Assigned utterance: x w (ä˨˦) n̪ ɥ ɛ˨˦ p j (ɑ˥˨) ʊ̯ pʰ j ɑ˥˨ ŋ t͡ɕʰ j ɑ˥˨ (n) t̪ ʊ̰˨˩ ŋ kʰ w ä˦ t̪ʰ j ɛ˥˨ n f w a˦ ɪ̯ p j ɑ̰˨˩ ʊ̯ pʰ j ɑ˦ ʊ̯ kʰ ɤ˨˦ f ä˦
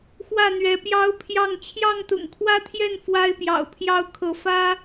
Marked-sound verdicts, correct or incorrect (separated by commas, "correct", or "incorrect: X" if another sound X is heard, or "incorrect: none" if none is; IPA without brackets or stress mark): incorrect: ä˥˨, incorrect: ɑ˦, incorrect: ŋ